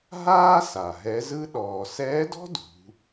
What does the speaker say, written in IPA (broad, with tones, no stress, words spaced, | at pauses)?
ɦaː˥ sa˩ɦɛ˧˥zɯ˥ ɗɔː˩sɛː˧˥dɔ̤˥ dṳ˩˧